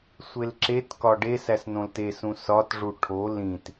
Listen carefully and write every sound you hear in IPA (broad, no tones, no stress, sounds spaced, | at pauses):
sʷ e l ǁ e t k ɒ ɖ e s æ s n õ l t e s ũ s ɒ t ʐ u ʈʰ o l ĩ t